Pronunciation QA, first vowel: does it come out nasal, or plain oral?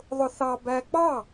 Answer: oral